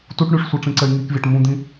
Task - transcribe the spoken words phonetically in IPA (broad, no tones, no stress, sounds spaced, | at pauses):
t u ʈ ɳ y ʂ sʷ ɪ ʈ͡ʂ ĩ ǀ ɛ i̯ ŋ i k vʲ ɛ ʈ m ũ d̪ ĩ